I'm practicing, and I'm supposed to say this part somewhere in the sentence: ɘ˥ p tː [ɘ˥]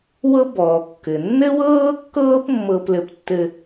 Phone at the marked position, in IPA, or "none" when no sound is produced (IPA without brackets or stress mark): ɘ˥